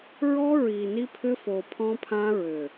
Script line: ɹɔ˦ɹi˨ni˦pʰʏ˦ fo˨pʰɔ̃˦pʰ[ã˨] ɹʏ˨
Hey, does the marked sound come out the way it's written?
no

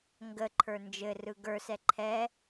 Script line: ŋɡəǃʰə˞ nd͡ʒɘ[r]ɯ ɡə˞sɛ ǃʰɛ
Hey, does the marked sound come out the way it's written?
yes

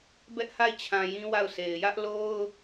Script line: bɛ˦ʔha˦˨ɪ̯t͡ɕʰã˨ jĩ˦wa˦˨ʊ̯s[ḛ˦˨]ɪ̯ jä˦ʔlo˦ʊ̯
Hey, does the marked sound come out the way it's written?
no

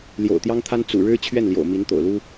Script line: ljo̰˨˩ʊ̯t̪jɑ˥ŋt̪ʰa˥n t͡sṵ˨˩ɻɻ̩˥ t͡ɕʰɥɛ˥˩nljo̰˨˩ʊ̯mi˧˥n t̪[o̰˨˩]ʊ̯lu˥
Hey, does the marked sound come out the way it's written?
yes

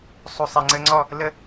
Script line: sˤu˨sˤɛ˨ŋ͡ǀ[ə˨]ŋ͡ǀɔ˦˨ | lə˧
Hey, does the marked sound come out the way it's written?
no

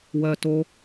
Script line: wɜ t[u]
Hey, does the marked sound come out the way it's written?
no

